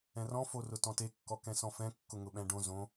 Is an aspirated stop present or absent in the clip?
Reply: absent